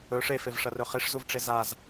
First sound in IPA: ɵ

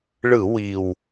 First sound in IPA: ɭ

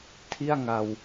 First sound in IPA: tʰ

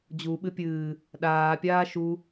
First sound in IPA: d͡ʑ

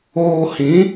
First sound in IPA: oː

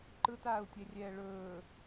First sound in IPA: ǃ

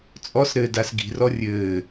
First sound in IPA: t͡sʼ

